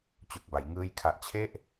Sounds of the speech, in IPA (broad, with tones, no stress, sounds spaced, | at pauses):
t͡ɕ u˨˩ k̚ b a˩˦ j ŋ ɯː˥˩ j kʰ a˦˥ ʔ t͡ɕʰ e˥˩ ʔ